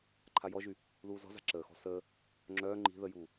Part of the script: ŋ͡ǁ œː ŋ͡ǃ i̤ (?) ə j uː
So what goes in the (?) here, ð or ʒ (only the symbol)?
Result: ð